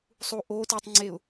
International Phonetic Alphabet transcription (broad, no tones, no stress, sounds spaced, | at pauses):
sˤ u ʔ o t u tˤ ŋ͡ǀ e ʊ̯